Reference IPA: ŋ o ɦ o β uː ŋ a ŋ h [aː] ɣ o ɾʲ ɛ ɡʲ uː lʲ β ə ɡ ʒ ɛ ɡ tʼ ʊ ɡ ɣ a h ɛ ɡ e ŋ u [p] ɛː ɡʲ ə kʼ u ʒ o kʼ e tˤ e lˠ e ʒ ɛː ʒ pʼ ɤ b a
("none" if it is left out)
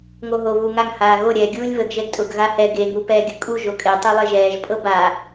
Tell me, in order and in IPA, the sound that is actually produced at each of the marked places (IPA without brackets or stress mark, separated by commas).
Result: aː, p